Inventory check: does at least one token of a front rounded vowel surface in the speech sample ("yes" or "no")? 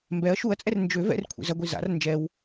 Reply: yes